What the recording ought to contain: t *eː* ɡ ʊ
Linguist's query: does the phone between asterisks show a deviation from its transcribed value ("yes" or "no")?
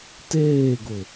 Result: no